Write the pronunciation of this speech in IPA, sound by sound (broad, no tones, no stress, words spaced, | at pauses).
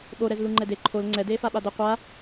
ɓoɾɛz luŋ͡ǃɛde ǃʰol ŋ͡ǀɛ deːfaɓadʌ qʷa